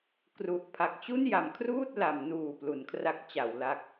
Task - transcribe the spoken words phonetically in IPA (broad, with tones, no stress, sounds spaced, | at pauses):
k r u˨˩ ʔ pʰ a˨˩ k̚ t͡ɕ u˥˩ n j a˩˦ m kʰ r uː˥˩ t̚ l a˩˦ m n uː˨˩ p l u˩˦ n kʰ r a˦˥ k̚ t͡ɕ a˩˦ w l a˦˥ k̚